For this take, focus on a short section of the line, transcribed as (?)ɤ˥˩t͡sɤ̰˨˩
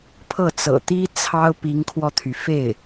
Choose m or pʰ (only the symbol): pʰ